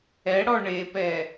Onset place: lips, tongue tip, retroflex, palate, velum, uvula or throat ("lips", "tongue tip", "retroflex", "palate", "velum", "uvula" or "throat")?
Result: retroflex